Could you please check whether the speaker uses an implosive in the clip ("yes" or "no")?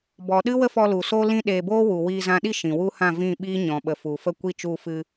yes